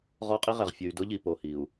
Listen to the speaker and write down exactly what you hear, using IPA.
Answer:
ʁ ɔ˦ qʼ i˦ ʁ ɛ˨ ʁ fʲ ʊ˨ y̯ d ʊ˦ ʎ i˨ p o˨ h i˨ u̯

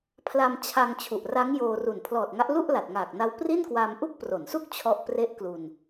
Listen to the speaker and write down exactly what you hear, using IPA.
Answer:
pʰ l a˧ m t͡ɕʰ a˧ ŋ t͡ɕʰ u˨˩ ʔ r a˦˥ ŋ j oː˧ r u˨˩ n pʰ l ɔː˨˩ t̚ ŋ a˦˥ ʔ l u˥˩ ʔ l a˨˩ t̚ ŋ aː˨˩ k̚ n a˦˥ w p r i˥˩ n k w aː˧ m ʔ u˥˩ k̚ p r o˩˦ n s u˥˩ k̚ t͡ɕʰ ɔ˥˩ ʔ p r e˥˩ ʔ k l u˧ n

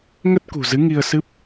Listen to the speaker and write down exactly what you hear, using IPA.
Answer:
ŋ ə˦˥ t̚ k ṳ˨˩ z ɨ˨˦ ŋ i˧ ə̯ s ɨ˦˥ p̚

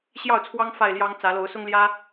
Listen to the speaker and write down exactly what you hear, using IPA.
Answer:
ɕ j ɑ˥˨ ʊ̯ t͡sʰ w ɑ˦ ŋ f a˥˨ ɪ̯ l j ɑ˦ ŋ t͡s ä˨˦ l o˨˦ ʊ̯ s ʊ˦ ŋ l j ä˦

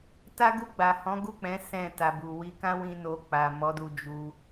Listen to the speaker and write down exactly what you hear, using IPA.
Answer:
t a˦ ɡ u˦˨ ɡ͡b a˨ h ɔ̃˨˦ ɡ u˦˨ k͡p ɛ̃˨˦ s ɛ̃˦˨ t a˨ b u˨ w i˧ k ã˦ w ĩ˦ n o˧ k͡p a˨ m ɔ˨˦ d u˧ d͡ʒ u˧

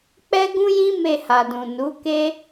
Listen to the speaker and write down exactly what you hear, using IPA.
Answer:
k͡p ɛ˦ ɡ ũ˦ j ĩ˦ m e˧ h a˨ d ũ˨ n u˨˦ k e˦

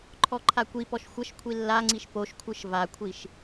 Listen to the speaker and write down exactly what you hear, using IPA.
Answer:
ǃʰ ɔ ǃʰ a kʷ i p ɔ ʃ xʷ ə ʃ kʷʰ i lː a ŋ͡ǀ i ʃ p o ʃ kʷʰ ɯ ʃ v a kʷʰ i ʃ

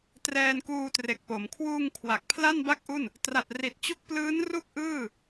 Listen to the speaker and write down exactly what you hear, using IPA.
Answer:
t r ɛː˧ n k uː˧ t r e˨˩ k̚ p o˩˦ m kʰ w uː˧ ŋ kʰ w a˨˩ k̚ pʰ l a˥˩ n b a˥˩ k̚ ʔ u˥˩ n | t r a˨˩ t̚ r i˨˩ t̚ t͡ɕ u˦˥ k̚ p l ɯː˦˥ n r u˥˩ k̚ ʔ ɯː˥˩

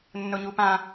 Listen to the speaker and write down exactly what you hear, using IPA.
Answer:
nː ʊ ɲ u p ã

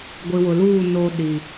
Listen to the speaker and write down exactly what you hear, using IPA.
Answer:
ɡʷ i˨ w ʊ˨ l uː˦˨ n oː˦ ɗ i˨

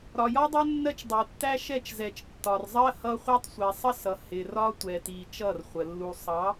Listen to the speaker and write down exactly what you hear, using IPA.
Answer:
ɾ ɒ˨ j ɒ˦ dˤ ʊ˦ nː ɜ˦ t͡ʃ dˤ u˨ tː æ˦ ʃ ɛ˦˨ t͡ʃ z ɛ˨ t͡ʃ tː ɒ˨ r zˤ ɜ˦ h ʌ˦ χʷ ɑ˦ tˤ sʷ ɛ˨ sˤ ə˦ s ʌ˨ h ɪ˨ r ɒ˦ tʷ ɛ˨ t i˨ t͡ʃ ʌ˦˨ r χʷ ə˨ lː u˨ sˤ ɑ˨˦

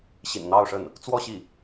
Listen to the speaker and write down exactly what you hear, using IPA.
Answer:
ɕ ḭ˨˩ n n̪ ɑ˥˧ ʊ̯ ʂ ə˥˩ n | t͡s w ɔ˥˧ ɕ i˥˩

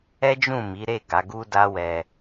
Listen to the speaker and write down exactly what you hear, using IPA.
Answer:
ɛ˦ d͡ʒ ũ˦˨ m i˨˦ ɾ e˦˨ ɡ a˨˦ ɡ u˦ d a˦ w ɛ˧

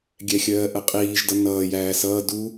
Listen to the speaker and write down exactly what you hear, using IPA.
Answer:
ɡʲ ɛ xʲ ɜː ʔ ə qʼ iː ʒ d ʌ n ʌː j æː s ʌː d u

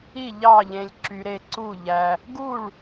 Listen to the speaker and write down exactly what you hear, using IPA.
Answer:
i˥˨ ʎ ɑ˥˨ ʎ ẽ˧ lʲ ǁ y˧ ɾ e˥˨ ǀ u˥˨ ʎ æ˧ | ɡ u˥˨ ɭ

